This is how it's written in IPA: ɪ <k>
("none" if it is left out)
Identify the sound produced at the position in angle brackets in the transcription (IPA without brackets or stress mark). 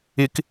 k